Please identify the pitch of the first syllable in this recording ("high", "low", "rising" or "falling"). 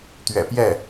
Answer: low